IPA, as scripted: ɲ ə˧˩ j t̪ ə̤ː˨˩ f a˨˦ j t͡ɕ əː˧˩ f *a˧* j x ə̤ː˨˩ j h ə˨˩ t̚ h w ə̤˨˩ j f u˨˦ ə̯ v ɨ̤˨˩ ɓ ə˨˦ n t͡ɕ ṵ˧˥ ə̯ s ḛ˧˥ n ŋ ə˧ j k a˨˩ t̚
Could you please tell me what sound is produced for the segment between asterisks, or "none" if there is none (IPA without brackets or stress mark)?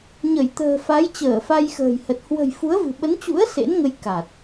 a˧